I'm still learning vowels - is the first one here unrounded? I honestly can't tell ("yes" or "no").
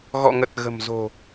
no